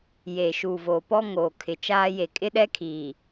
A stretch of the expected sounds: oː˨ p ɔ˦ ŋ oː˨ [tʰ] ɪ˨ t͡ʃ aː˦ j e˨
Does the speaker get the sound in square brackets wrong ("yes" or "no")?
yes